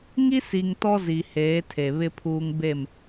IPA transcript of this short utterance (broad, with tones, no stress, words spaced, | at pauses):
ŋi˦si˨ŋ tɔ˦zi˨ heː˨˦tʰe˨βɪ˦pʰuː˦ŋ be˦˨m